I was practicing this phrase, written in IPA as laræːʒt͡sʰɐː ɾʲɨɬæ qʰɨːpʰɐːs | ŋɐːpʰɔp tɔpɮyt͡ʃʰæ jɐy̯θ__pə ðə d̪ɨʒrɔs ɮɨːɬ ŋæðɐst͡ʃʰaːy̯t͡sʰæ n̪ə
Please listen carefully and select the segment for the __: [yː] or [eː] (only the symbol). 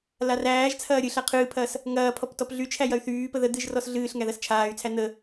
yː